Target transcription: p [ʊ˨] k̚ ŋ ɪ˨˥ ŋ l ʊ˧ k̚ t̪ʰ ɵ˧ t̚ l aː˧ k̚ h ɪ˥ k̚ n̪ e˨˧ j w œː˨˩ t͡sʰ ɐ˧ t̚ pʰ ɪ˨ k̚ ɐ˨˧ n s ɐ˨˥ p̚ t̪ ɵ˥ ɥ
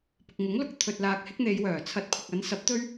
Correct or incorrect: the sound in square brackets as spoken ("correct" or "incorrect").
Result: correct